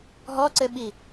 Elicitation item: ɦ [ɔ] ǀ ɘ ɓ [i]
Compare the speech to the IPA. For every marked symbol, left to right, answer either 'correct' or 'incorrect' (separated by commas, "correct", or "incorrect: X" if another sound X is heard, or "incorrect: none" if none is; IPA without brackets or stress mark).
correct, correct